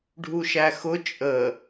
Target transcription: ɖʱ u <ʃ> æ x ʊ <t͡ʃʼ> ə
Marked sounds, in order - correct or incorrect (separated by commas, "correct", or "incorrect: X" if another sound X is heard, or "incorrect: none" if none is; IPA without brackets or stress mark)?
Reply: correct, correct